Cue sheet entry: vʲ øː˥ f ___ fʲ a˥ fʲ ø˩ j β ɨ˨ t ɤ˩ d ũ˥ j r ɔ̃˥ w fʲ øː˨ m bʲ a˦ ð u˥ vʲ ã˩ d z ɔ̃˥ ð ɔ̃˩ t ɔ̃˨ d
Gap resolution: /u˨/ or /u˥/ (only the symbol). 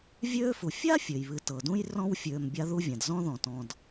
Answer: u˨